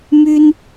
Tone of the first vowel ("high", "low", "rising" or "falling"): high